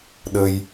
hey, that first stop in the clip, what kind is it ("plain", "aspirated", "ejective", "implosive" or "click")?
implosive